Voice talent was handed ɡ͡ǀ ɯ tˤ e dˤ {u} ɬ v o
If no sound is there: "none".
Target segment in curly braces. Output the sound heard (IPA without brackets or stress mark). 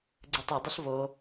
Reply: ɯ